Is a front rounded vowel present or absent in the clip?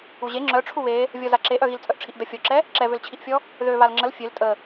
present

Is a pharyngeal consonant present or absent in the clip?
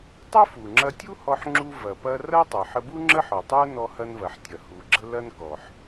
present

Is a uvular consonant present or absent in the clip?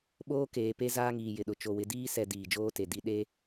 absent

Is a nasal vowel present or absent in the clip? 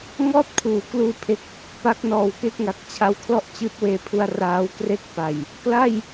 absent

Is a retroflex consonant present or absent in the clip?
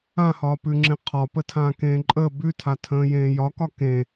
absent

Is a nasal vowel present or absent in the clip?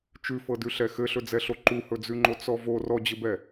absent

